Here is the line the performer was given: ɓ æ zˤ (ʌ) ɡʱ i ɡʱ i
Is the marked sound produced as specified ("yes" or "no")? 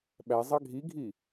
no